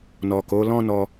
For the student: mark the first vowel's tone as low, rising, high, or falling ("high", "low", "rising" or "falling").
low